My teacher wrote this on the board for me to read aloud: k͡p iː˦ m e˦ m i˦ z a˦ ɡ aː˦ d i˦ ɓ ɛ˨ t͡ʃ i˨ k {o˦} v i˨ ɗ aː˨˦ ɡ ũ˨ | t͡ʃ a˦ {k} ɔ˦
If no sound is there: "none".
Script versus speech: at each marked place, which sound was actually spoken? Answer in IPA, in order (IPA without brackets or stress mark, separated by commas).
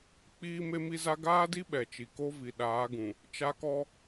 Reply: o˦, k